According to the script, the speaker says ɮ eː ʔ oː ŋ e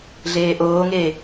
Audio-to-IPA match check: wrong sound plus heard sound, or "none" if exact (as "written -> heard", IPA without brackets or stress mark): none